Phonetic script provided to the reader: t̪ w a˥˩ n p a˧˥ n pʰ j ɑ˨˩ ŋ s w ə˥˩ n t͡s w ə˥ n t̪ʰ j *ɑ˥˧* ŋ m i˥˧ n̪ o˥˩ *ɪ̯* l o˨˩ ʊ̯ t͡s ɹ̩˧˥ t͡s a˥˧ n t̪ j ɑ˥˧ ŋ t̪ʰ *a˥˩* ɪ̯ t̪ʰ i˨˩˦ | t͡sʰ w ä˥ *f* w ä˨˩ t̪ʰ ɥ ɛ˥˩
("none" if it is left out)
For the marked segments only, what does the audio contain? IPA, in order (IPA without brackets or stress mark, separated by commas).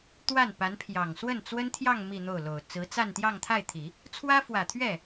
ɑ˥˧, ʊ̯, a˥˩, f